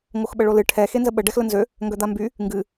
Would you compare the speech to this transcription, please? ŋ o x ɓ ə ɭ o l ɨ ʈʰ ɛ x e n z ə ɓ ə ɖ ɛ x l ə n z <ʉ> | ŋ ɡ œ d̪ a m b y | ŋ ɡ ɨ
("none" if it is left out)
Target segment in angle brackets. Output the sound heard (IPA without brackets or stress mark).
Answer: ø